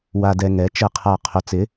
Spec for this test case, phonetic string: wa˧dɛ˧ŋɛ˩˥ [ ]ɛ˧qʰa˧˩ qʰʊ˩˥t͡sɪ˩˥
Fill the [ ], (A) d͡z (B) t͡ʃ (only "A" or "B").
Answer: B